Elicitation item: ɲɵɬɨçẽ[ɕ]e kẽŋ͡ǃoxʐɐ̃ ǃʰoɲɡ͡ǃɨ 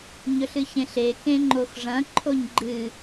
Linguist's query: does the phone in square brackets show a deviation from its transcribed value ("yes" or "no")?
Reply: yes